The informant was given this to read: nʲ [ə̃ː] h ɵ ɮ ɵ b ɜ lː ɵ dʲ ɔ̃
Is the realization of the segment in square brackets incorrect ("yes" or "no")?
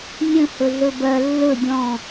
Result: yes